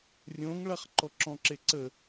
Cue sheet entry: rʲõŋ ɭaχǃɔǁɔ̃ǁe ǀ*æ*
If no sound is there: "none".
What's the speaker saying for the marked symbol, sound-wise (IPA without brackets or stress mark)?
ə